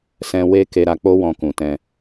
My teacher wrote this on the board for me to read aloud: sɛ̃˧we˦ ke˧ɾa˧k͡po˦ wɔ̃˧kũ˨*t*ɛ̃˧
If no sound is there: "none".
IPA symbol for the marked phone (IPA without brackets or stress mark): t